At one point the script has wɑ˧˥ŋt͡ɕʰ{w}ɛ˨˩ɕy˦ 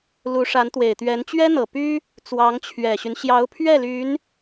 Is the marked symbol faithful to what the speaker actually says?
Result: no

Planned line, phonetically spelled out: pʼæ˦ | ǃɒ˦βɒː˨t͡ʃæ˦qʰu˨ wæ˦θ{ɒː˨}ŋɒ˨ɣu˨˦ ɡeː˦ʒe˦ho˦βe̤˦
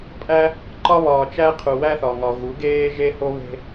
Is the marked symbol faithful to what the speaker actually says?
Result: no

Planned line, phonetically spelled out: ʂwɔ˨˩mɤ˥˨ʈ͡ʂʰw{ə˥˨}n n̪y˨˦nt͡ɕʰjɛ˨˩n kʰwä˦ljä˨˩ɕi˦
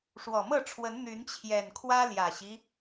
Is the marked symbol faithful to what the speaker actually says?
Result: no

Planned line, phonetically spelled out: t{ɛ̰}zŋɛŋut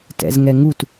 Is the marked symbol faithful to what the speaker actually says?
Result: yes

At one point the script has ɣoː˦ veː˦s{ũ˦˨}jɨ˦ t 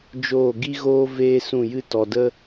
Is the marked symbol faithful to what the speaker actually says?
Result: yes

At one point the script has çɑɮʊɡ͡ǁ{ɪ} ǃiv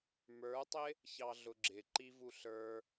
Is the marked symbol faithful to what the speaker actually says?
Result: yes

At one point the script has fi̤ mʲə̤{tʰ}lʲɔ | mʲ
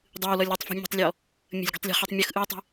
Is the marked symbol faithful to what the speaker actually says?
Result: no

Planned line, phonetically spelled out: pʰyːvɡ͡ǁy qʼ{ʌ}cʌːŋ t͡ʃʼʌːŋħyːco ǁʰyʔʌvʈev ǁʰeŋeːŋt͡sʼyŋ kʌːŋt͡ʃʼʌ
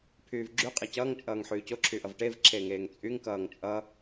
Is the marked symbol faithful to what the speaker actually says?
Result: yes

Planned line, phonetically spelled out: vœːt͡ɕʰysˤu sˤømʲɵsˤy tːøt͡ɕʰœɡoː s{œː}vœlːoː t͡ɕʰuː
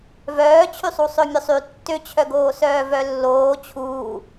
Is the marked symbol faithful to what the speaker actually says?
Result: yes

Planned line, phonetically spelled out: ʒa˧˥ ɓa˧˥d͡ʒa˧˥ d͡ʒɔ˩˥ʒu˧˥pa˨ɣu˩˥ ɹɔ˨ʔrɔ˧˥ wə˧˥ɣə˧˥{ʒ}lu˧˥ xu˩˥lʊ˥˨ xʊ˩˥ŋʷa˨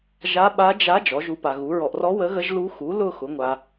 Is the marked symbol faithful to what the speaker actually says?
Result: yes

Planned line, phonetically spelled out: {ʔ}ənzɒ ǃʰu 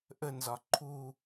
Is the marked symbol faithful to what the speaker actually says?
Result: yes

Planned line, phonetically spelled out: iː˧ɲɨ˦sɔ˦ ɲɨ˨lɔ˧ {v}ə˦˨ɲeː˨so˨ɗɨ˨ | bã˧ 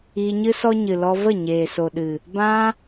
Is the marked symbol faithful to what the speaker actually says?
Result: yes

